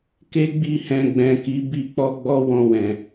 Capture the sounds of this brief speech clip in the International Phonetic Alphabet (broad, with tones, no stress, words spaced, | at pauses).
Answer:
ke˦ɡ͡bi˦˨ hɛ̃˧ɡ͡bɛ̃˨ki˨˦bi˦˨ k͡pɔ˧ɡ͡bɔ˦ wɔ̃˧wɛ̃˨